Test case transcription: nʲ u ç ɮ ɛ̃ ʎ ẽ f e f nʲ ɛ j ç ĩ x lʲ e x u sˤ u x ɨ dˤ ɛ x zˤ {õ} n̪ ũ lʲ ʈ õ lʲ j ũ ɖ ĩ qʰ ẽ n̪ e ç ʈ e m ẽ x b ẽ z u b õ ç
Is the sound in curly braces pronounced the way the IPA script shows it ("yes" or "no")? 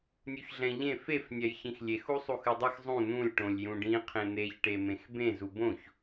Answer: no